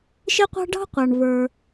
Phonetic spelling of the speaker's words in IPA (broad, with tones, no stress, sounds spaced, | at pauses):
ʃ ɪ˥ qʷ ɑ̤˥ ɖ ɑ̤˥ qʷ ɑ˩ ɳ v ə˞˩